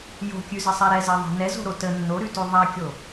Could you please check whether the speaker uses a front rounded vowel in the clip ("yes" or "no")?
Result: no